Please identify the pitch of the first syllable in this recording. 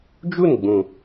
falling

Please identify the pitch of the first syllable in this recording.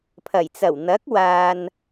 low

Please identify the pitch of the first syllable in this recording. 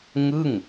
falling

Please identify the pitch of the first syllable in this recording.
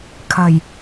low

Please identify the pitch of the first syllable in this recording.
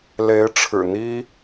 rising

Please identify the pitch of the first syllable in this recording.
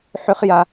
high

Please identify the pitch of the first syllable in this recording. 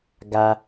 low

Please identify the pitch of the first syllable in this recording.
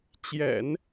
low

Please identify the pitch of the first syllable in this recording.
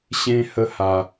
high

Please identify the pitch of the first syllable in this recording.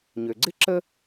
low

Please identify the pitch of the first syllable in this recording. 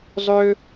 high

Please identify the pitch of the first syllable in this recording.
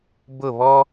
falling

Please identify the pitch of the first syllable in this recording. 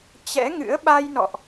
rising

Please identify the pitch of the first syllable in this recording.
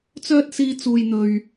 high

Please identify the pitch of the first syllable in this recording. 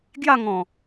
falling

